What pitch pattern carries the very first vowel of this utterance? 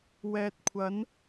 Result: low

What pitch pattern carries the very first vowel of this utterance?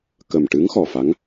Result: low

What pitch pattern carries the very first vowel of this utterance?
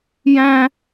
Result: high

